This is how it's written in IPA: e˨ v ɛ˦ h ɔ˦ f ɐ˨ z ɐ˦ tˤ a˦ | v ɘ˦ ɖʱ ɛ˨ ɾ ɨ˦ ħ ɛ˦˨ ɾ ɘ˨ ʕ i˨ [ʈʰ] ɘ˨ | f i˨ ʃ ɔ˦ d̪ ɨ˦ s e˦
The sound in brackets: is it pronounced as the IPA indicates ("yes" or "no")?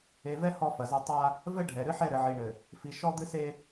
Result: no